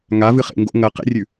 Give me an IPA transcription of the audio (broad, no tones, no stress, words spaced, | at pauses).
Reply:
ŋavɨ χḛŋɡo̰ ŋɐ qḛrʲʉ